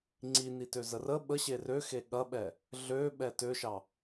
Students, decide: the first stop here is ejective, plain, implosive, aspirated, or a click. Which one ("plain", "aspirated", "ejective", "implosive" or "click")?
click